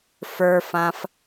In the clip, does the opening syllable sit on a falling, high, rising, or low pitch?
high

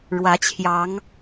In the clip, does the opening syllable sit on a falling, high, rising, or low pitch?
rising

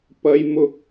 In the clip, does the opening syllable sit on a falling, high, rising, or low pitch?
high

